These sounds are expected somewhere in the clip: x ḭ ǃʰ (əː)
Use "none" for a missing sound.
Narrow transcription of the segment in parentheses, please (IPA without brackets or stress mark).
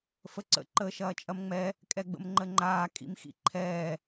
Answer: ɛː